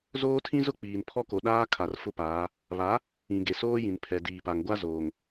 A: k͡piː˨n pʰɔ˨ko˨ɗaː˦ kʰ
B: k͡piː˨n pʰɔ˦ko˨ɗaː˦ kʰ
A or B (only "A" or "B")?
B